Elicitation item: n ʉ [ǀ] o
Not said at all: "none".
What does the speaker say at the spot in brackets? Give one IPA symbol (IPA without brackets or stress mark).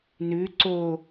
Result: ǀ